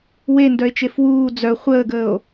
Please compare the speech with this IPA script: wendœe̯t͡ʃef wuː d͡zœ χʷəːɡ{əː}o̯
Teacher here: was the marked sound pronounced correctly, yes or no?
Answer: yes